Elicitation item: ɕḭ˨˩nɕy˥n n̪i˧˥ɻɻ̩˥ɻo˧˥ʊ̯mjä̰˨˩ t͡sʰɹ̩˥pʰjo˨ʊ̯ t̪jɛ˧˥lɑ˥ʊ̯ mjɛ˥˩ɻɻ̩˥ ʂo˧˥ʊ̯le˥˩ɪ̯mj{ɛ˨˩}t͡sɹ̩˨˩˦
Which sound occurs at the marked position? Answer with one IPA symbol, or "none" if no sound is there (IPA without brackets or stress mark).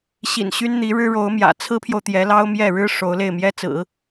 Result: ɛ˥